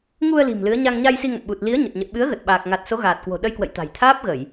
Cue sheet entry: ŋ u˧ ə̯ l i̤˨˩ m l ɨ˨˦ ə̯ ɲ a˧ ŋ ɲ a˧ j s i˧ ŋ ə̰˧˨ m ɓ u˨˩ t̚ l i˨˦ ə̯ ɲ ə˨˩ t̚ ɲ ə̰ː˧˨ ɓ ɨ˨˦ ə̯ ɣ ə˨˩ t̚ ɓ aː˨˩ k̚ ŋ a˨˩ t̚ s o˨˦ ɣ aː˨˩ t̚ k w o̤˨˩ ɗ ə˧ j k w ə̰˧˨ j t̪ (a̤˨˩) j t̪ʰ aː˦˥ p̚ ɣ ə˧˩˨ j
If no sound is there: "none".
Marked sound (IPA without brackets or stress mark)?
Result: a̤˨˩